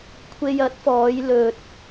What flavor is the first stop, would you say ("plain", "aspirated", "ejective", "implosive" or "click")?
aspirated